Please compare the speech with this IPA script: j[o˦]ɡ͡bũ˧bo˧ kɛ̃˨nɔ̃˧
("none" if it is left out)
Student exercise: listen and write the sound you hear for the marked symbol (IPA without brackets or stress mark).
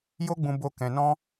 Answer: o˦